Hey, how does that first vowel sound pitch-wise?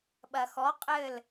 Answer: low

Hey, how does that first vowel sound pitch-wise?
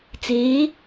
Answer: rising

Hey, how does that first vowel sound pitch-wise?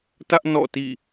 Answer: high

